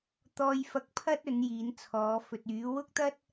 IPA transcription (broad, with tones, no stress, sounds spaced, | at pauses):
t̪ ɔː˧ j f ɐ˧ k̚ pʰ ɐ˥ t̚ ɵ˨˥ n j iː˨˥ n t͡sʰ ɔː˨˥ f ɵ˨ t̚ yː˨˥ w ʊ˥ k̚ t̪ ɐ˥ t̚